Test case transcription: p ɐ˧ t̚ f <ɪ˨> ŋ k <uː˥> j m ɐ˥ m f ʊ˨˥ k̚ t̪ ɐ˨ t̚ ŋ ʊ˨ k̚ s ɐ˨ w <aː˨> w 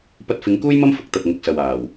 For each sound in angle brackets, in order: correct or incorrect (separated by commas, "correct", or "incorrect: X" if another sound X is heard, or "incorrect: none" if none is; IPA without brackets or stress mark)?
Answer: incorrect: ɪ˨˧, correct, incorrect: aː˨˩